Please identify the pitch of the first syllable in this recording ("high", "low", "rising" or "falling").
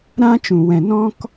high